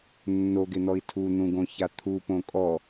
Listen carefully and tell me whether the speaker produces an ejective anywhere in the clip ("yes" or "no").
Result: yes